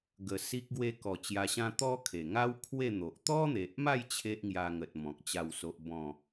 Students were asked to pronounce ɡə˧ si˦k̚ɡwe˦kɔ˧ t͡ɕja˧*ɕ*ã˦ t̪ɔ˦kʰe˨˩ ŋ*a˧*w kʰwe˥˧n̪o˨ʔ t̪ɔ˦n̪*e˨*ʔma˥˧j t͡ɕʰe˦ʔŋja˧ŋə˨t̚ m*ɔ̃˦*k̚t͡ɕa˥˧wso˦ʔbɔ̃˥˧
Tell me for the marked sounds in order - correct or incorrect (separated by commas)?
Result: correct, incorrect, correct, incorrect